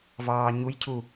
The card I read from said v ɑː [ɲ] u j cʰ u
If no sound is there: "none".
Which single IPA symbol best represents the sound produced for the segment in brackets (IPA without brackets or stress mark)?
ɲ